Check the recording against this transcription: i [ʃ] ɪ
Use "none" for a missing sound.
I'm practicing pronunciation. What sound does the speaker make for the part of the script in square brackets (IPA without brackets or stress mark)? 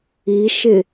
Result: ʃ